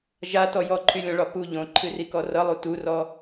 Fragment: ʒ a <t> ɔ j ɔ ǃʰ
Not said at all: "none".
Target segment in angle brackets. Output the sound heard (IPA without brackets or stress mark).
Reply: t